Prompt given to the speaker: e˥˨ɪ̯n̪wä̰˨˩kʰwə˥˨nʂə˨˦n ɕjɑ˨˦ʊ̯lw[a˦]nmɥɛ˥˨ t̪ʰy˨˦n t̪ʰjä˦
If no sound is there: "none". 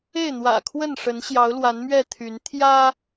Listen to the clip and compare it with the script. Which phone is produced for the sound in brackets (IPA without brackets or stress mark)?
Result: a˨˦